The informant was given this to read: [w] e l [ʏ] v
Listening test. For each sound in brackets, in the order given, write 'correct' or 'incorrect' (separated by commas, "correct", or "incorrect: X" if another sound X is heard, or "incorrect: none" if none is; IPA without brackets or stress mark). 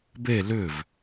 incorrect: b, correct